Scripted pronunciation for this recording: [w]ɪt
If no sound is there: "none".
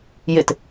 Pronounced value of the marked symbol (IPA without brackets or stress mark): j